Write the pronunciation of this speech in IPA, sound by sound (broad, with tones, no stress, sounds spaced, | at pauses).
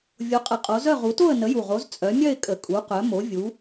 vʲ o˨˦ qʼ ə˨˦ qʼ o˨˦ z œ˥˧ ʁ u˨˦ t o˥˧ ə̯ n ə˨˦ j u˨˩ ʁ o˨˦ z t͡sʼ œ˨˦ mʲ œ˥˧ ɪ̯ kʼ ə˨˩ kʼ u˨˦ q œ˨˦ m o˨˦ vʲ u˨˦